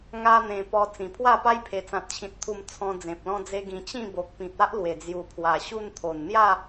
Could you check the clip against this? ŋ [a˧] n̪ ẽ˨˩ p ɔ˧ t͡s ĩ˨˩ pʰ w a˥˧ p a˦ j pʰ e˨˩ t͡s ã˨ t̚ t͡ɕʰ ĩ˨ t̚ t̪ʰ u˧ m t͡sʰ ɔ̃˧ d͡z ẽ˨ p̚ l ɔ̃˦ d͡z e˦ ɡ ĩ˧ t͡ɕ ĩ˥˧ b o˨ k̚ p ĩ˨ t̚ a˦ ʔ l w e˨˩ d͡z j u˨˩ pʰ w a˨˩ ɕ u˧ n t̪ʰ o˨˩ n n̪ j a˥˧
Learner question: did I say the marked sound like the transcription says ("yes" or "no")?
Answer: yes